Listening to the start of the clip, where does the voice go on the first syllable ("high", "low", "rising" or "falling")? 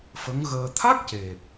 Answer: rising